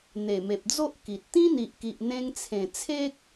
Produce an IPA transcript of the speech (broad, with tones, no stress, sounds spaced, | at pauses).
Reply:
n̪ e˨˩ m e˨ p̚ d͡z o˦ ʔ k i˨ t̚ t̪ ĩ˦ n̪ i˨ ʔ k i˨ ʔ n̪ ẽ˧ ŋ t͡sʰ ẽ˨˩ t͡sʰ e˦ k̚